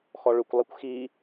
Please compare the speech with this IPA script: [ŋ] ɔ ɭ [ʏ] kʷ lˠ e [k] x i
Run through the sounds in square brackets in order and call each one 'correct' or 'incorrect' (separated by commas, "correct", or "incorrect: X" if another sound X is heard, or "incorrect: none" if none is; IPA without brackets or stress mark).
incorrect: x, correct, incorrect: kʷ